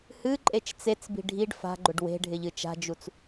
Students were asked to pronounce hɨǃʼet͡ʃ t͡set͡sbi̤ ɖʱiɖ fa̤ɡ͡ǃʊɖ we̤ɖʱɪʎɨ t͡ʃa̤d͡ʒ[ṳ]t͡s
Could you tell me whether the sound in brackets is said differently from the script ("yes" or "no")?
yes